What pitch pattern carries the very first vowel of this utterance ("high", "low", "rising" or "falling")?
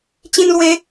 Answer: high